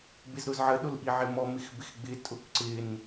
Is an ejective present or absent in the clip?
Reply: present